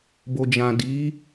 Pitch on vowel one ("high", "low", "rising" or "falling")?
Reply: low